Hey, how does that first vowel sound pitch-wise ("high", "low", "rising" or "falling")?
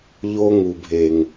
high